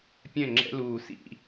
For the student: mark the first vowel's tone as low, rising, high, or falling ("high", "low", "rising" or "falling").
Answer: falling